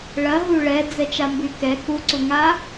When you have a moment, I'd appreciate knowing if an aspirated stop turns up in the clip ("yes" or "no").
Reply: no